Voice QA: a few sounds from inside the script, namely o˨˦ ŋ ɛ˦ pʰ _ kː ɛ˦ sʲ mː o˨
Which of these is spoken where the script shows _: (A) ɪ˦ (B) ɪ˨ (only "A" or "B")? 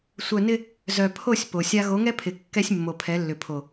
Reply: B